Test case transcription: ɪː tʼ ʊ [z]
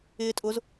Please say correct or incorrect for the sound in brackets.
correct